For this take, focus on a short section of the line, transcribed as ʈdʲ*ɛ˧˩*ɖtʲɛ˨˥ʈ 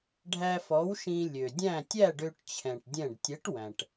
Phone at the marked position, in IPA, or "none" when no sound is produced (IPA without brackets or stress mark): ɛ̃˧˩